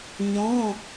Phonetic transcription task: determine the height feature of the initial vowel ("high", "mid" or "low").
mid